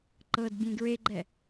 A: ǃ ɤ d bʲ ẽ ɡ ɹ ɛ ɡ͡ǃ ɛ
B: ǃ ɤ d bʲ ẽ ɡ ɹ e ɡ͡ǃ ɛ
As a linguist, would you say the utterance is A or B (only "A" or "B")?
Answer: B